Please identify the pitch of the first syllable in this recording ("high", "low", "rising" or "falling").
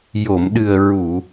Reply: low